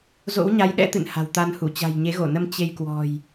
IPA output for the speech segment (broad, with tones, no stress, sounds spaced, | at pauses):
z o̰˧˥ w ɲ a˨˦ j ɗ ɛ̰˧˥ t̪ ɨ̰˧˨ n h a̤˨˩ w t̪ a˧ n h u˧˩ t͡ɕ a̤˨˩ j ɲ e˨˦ ɣ o˧˩ n ə˧ m t͡ɕ e˧ j k w ɔ̤˨˩ j